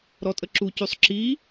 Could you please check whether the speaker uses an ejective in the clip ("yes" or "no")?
yes